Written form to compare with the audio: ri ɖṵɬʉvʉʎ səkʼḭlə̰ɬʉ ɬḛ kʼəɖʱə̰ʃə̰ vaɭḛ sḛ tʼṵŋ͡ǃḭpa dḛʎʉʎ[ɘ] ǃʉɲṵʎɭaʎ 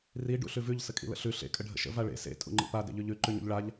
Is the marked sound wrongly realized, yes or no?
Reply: yes